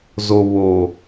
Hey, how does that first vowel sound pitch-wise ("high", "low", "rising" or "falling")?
low